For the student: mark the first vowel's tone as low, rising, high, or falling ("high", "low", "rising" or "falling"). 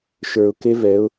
low